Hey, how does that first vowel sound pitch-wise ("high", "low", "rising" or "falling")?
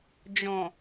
low